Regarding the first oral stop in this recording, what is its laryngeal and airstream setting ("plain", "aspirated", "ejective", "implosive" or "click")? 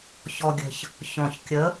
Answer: plain